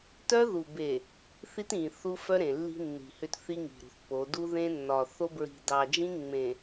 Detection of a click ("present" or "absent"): absent